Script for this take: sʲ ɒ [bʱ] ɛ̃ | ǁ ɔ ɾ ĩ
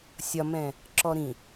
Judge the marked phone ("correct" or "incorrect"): incorrect